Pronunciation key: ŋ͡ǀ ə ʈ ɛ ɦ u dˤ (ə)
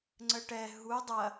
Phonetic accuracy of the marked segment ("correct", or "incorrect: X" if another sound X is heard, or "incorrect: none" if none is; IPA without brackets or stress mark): incorrect: ɐ